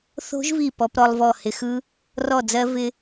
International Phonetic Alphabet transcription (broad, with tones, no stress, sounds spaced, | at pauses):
θ o̤˦˥ ʒ v i˧˩ p ɔ˧ p ɾ ɔ˧ lˠ v ɔ˧˩ h ɪ˧ x ɯ˦˥ | r ɔ˧˩ d͡z ɜ˧ v ɪ˧